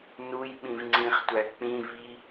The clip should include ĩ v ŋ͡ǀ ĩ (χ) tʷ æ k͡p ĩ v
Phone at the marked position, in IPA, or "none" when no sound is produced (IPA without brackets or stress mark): χ